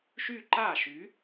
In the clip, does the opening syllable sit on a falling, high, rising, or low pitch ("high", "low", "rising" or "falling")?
high